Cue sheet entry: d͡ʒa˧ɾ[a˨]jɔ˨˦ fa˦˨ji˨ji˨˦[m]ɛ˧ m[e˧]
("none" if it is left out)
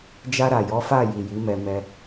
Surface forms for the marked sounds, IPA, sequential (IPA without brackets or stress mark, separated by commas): a˨, m, ɛ˧